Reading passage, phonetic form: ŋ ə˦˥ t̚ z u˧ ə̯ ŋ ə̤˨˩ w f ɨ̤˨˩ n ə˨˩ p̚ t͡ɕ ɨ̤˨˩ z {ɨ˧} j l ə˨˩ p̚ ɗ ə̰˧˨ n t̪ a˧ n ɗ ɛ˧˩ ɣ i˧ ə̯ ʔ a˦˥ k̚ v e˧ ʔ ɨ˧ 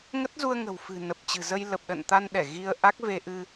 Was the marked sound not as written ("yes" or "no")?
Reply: yes